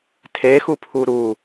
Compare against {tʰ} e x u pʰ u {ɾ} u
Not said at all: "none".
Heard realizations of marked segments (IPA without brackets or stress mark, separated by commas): tʰ, ɾ